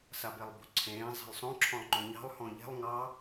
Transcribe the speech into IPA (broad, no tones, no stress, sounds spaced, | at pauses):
s a b e lˠ b o̤ ǀʰ ẽː zˤ ɛ̤ lˠ sˤ õ ǁʰ ɔ̃ lˠ ŋ͡ǃ õ ɲ ɑ̤ lˠ h ɔ̃ ʎ ɛ̤ lˠ ŋ ɑ